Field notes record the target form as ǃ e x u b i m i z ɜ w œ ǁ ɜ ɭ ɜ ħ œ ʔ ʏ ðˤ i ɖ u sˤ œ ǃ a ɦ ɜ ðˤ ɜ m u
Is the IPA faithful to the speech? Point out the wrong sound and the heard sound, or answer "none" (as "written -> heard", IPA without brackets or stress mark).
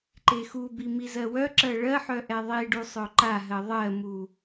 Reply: ʏ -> ɛ